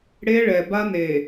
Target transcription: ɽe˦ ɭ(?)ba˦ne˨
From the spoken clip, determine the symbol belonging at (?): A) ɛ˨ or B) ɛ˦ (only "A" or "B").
A